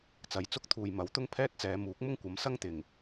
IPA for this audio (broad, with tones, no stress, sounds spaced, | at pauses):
t͡s ɐ˨˧ j t͡s ʊ˥ k̚ t̪ʰ uː˨ j m ɐ˨˥ w t̪ ʊ˥ ŋ pʰ ɛː˥ t̚ t͡s ɛː˨˧ m uː˨˥ k̚ m ʊ˥ ŋ kʷ ɐ˨˥ m s ɐ˥ ŋ t̪ ɪ˨˩ ŋ